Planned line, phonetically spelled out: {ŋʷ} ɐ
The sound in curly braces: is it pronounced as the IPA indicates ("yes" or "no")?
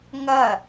no